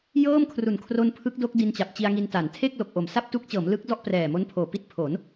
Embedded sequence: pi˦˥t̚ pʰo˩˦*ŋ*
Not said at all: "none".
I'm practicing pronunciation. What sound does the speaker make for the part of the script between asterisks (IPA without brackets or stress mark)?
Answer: n